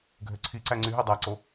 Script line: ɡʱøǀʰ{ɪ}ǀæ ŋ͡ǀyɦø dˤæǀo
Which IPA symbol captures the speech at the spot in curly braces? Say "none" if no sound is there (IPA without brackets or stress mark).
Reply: i